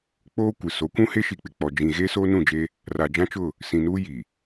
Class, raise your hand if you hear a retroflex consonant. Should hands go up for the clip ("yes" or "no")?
no